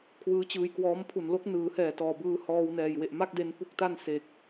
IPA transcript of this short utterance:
kʰ w ɯː˦˥ t͡ɕ ɯː˧ j k w ɔː˦˥ m pʰ u˨˩ n l o˦˥ k̚ n ɯː˩˦ h ɛː˨˩ t ɔː˨˩ b ɯː˧ h ɔː˧ w n ɛː˨˩ j w e˨˩ ʔ m a˥˩ k̚ d e˧ n p u˥˩ k̚ t a˥˩ n s e˨˩ k̚

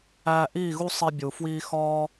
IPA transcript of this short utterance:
æː˧ ʔ iː˦˨ ɣ u˦ sˤ i˧ bʲ u˨ f w iː˦ x ɒː˦

